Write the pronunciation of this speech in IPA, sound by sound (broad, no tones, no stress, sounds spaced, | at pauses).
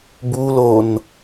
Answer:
b u l o n